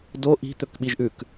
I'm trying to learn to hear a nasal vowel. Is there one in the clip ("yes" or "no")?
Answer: no